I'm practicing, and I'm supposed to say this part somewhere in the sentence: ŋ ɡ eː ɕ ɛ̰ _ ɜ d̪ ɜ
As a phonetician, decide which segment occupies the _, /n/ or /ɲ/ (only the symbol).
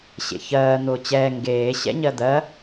ɲ